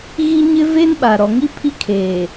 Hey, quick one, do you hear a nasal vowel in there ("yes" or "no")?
no